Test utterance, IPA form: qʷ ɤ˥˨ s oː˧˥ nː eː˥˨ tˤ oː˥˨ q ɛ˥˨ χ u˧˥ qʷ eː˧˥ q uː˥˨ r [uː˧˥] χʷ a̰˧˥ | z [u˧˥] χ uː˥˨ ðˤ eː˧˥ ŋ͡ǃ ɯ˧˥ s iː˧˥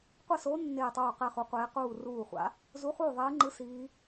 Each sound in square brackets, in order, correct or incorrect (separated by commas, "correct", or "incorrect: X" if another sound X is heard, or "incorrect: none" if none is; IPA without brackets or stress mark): incorrect: uː˥˨, correct